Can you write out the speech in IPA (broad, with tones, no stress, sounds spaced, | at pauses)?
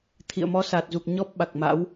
t̪ʰ ḭ˧˨ ə̯ m ɔ˨˦ s aː˨˩ t̚ z u˨˩ k̚ ɲ ɔ˦˥ p̚ ɓ a˨˩ k̚ m a̰˧˥ w